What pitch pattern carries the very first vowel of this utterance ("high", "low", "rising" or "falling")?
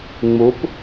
rising